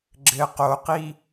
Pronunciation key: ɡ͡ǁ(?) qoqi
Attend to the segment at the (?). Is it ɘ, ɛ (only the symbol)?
ɘ